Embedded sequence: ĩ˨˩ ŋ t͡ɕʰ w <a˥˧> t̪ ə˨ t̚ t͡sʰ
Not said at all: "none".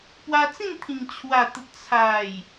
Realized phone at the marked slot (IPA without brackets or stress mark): a˨˩